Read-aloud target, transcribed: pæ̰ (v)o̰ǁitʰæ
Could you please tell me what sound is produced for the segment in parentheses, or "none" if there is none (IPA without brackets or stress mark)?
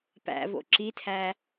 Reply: v